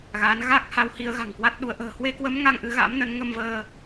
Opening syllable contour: rising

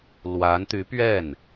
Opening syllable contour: rising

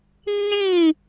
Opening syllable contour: falling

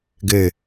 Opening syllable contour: low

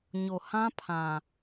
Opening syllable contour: low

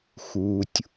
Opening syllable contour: low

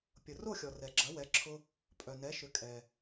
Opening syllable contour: low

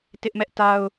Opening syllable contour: high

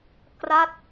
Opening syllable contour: falling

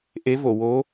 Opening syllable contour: rising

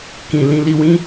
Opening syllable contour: low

